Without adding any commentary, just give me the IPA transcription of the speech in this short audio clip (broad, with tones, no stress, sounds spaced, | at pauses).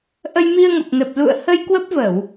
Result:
ʔ ə˧ j m i˧ ə̯ ŋ ə˨˩ p̚ n ə˨˩ p̚ l ṵ˧˨ ə̯ h ə˧ j k w ə˦˥ p̚ v ə˧˩˨ w